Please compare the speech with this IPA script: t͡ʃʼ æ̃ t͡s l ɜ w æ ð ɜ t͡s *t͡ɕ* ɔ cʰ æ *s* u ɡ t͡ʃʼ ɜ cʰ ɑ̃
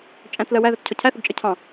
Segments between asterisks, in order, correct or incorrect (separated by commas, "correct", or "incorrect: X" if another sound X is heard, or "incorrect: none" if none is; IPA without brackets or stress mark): incorrect: cʰ, incorrect: θ